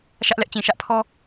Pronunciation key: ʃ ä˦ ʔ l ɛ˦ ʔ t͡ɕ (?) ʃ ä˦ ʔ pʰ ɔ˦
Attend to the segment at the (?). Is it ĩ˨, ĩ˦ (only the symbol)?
ĩ˨